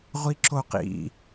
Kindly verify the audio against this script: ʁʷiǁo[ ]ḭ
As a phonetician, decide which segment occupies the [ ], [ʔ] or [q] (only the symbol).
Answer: q